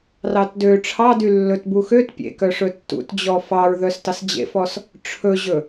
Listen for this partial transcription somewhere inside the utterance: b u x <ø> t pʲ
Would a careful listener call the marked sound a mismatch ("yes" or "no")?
no